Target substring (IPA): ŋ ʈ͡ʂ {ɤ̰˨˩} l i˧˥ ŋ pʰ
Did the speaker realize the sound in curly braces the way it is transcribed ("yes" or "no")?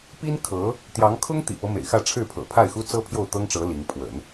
no